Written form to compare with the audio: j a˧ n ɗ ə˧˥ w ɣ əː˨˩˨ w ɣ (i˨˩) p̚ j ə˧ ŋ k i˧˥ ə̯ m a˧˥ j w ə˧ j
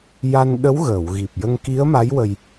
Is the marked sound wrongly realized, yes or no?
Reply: no